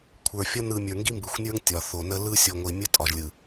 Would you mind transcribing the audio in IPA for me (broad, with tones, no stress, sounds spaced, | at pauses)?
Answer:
kʷʰ ə˞˨ fʲ ʌ˦ n ɯ˨ mʲ ə˞˨ ŋ ɡ i˦ m b ɯ˨ xʷ nʲ ə˞˦ ŋ tʲ ɒ˨ θ o˨ n ə˦ l ɯ˦ sʲ o˨ ŋʷ i˨ mʲ ə˦ tʼ ɒ˨ ʒ lʲ ɯ˨